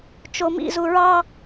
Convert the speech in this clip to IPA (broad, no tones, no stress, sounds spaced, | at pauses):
t͡ʃ o m ḭ z u ɹ ɑ